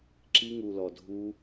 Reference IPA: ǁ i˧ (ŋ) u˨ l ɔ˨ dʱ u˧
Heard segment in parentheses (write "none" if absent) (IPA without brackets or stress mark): ŋ